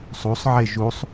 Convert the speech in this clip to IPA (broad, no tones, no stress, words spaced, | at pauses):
sˤusˤʕe ʒusˤ